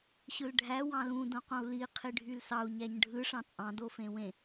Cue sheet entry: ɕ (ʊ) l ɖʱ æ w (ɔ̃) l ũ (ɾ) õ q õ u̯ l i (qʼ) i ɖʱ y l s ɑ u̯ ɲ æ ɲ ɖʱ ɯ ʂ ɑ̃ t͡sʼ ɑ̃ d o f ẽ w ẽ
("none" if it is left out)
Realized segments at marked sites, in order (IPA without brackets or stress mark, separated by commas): ɯ, ɑ̃, d, qʰ